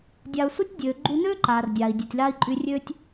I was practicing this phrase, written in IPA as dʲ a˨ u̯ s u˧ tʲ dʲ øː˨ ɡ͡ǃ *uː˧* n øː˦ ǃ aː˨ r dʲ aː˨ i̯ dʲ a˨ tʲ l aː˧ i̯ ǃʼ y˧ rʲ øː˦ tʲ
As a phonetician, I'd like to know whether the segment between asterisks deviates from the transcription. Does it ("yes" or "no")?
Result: yes